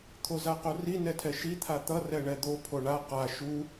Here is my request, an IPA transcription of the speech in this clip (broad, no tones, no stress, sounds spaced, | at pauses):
t̪ʰ o z a q o r i n ɛ tʰ ɛ ʃ i t̪ʰ a t̪ ʌ r ɛ ɳ ɛ d̪ o pʰ o ɳ a q a ʃ u